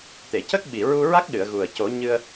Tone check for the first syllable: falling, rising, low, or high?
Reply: low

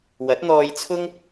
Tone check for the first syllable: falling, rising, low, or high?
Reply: rising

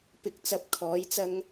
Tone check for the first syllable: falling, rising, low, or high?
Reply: rising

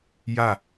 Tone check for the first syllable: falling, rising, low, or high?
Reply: falling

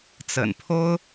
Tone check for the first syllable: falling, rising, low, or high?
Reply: low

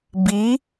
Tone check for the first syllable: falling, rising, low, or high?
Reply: rising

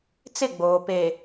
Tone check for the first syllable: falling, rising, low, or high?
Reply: falling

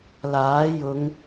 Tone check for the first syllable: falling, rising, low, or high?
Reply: rising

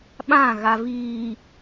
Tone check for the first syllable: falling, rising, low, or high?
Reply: falling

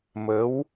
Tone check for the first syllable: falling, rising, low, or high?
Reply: rising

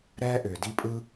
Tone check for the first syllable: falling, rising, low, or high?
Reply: high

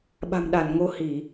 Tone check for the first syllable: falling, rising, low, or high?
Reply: low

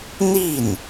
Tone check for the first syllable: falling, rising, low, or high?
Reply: falling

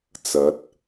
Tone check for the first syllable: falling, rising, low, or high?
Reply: rising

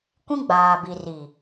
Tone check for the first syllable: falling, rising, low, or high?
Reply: high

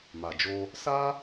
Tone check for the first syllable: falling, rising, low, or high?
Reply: low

